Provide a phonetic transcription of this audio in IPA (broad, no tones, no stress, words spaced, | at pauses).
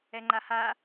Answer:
ɛŋ͡ǃaha